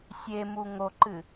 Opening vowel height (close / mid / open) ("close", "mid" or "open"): mid